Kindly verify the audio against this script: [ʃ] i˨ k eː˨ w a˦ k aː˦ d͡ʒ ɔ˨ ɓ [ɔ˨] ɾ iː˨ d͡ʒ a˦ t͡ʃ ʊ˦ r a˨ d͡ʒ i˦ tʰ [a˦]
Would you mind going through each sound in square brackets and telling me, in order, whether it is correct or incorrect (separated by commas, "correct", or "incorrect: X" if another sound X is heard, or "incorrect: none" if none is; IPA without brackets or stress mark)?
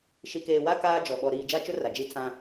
correct, correct, incorrect: ã˦